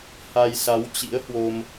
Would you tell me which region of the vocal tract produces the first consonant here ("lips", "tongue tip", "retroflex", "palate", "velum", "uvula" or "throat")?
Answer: throat